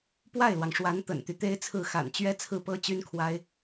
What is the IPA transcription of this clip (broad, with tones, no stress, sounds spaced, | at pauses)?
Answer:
p w a˥˩ ɪ̯ l w ɑ˩ ŋ ʂ w a˧˥ n t̪ ə̰˨˩ n t̪ y˦ t̪ e˥ ɪ̯ t͡sʰ ɹ̩˥˩ x a̰˨˩ n t͡ɕ ɥ ɛ˥ t͡sʰ ɹ̩˥˩ p ɤ˥ t͡ɕ y˥ n kʰ w a˥ ɪ̯